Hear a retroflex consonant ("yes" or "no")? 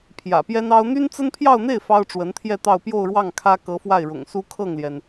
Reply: yes